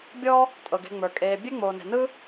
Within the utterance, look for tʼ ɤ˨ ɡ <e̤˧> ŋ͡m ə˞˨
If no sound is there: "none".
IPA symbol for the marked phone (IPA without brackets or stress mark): e̤˧